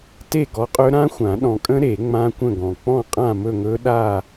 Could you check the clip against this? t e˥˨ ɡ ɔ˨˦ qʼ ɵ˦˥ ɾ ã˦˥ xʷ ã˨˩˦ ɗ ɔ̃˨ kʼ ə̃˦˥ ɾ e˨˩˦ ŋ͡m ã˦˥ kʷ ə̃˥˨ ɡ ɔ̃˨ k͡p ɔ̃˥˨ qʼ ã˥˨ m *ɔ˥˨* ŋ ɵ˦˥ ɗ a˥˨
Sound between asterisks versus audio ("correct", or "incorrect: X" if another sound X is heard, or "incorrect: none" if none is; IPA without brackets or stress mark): incorrect: ɵ˥˨